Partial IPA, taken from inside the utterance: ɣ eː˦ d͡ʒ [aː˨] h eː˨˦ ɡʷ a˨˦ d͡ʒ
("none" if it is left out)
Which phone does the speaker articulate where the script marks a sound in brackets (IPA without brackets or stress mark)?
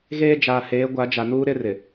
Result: aː˨